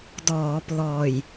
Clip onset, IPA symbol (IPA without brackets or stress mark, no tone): d